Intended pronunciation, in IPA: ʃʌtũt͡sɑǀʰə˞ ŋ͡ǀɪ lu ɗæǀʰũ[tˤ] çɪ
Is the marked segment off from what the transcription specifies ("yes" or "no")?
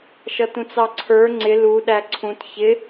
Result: yes